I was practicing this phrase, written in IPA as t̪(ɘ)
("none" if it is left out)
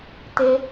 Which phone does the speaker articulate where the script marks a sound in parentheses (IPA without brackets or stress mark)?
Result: e